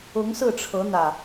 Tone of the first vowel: rising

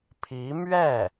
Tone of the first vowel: rising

